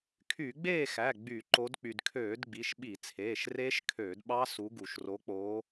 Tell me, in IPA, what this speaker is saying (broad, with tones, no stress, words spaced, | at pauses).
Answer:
kʰy˧˩˧ɡ͡beː˥˨xæ˩˧˩ ɡ͡by˧˩˧ǃo˨˦d k͡py˩dkʰøː˧˩˧d ɡ͡bi˩˧˩ʃɓi˧˩˧t͡sʰeː˩˧˩ʃreː˦˥ʃ kʰøː˧˩˧dɓɑ˦˥su˨˦ ɡu˩ʃro˨˦k͡poː˨˦